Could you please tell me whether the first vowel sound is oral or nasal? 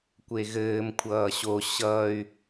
oral